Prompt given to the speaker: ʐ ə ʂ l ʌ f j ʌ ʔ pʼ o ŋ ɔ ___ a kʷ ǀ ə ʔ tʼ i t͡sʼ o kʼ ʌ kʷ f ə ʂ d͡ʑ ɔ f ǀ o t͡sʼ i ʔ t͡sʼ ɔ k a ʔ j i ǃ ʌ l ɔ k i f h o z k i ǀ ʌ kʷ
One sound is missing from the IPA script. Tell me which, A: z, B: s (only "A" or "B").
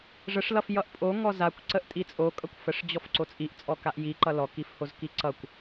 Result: A